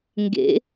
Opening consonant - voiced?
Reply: yes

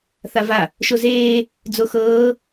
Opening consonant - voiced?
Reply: no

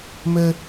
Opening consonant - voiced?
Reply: yes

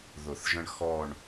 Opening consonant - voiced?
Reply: yes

